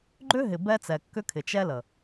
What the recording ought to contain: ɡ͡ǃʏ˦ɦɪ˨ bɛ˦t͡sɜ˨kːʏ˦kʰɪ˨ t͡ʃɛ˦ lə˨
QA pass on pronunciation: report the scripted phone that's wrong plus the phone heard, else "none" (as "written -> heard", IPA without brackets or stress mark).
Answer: ɜ˨ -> ɛ˨